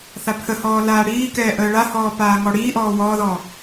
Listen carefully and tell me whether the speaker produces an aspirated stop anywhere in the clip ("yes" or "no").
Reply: yes